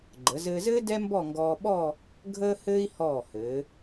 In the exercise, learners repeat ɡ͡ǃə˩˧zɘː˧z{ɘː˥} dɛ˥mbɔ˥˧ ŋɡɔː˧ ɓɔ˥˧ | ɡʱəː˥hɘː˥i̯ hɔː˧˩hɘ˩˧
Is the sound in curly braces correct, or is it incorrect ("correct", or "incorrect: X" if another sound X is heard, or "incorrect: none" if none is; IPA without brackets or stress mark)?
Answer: correct